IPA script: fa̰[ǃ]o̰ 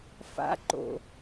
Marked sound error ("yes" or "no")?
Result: no